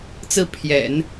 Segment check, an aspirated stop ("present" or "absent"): present